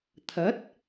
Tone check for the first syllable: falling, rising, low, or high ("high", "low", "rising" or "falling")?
rising